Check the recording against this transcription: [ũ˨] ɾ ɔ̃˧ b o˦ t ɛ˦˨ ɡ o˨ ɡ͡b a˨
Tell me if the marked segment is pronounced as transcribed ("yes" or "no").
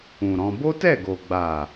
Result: yes